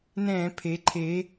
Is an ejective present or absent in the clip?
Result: absent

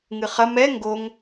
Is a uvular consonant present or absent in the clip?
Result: present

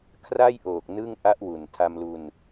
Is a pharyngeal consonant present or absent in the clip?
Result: absent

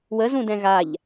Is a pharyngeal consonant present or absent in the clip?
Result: absent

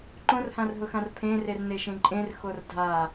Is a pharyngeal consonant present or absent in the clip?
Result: absent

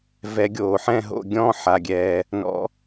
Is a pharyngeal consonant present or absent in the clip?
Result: present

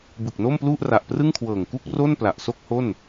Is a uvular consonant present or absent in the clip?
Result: absent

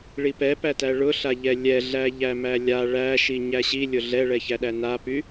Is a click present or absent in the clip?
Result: absent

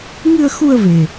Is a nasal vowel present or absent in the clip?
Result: absent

